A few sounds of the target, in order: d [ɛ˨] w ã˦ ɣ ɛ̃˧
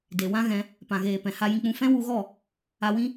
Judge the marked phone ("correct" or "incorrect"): incorrect